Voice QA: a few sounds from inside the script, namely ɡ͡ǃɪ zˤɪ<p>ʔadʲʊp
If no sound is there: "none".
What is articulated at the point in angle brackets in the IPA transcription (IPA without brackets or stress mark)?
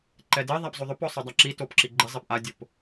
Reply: p